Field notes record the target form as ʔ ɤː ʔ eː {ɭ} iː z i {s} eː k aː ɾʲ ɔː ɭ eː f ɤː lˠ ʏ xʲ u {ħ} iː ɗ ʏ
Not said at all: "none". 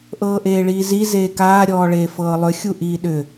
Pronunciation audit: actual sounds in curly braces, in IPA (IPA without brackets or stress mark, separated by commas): ɭ, z, ʔ